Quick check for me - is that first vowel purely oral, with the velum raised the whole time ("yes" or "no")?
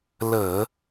yes